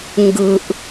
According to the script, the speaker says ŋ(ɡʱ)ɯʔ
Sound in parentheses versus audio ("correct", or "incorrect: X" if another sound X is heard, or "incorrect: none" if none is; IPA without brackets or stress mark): incorrect: ɡ